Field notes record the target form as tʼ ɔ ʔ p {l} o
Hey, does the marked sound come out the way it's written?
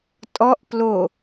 yes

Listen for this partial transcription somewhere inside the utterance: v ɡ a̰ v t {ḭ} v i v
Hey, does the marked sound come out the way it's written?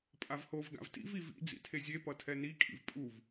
yes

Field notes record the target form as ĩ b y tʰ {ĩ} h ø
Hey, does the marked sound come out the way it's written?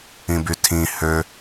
yes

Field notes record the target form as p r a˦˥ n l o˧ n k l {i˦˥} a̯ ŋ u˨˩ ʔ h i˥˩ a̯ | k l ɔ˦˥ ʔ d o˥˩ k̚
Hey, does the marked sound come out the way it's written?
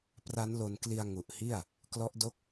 no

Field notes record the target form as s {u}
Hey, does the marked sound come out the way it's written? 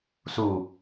yes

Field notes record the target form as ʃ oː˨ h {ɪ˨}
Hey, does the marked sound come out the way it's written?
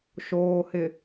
yes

